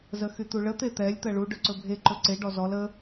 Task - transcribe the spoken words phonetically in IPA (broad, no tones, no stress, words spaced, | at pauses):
zəxyt̪uɭə t̪et̪ɛlʲ t̪ɜɭu ɖɵǀɵbʱe ǃɵǀe ɖɔzɔl ə